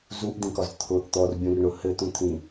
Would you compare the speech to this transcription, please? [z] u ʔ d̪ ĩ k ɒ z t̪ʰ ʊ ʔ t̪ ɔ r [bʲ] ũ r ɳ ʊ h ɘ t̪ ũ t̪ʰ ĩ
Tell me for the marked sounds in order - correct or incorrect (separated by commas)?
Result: correct, correct